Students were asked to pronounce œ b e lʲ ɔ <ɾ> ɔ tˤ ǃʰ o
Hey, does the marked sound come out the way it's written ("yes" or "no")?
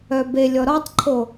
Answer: yes